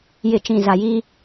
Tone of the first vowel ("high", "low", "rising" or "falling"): low